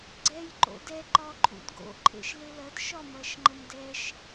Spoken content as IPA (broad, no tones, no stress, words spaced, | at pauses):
ɡ͡ǀɛj ǃo̰dɛ ǃɒǃʼṵdɡo̰ ǃʼḛʃlelɐd ʃɒmɐʃŋ͡ǃəmdɛʃ